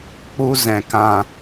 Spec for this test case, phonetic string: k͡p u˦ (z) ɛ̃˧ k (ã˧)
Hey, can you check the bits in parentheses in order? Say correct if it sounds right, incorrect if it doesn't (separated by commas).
correct, correct